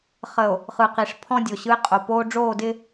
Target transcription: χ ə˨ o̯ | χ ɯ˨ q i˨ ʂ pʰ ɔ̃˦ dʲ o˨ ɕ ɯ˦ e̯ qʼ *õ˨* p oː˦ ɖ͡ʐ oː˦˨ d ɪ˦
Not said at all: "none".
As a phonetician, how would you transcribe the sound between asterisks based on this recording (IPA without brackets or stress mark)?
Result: o˨